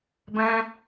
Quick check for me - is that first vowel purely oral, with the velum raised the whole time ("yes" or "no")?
no